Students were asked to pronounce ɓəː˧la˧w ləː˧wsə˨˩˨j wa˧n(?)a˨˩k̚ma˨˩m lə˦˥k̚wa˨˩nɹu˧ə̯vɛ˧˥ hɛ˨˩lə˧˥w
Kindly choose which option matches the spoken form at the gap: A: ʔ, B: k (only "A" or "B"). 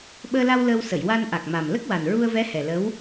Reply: A